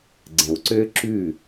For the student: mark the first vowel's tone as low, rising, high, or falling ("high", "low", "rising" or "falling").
low